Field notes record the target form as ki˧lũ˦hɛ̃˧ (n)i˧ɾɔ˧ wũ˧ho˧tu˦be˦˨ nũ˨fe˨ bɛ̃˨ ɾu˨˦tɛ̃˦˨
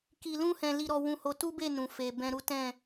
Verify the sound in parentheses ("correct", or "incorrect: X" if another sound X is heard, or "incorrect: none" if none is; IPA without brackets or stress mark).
incorrect: l